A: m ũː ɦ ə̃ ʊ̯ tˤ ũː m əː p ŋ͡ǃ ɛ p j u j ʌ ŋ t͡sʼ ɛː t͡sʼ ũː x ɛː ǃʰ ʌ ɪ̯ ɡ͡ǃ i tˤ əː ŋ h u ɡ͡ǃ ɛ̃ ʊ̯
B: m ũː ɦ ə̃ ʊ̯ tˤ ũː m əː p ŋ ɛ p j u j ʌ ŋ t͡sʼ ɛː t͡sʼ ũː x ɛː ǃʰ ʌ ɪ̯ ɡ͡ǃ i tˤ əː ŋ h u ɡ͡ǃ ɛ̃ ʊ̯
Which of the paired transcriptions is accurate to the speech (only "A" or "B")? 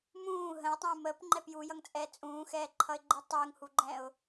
A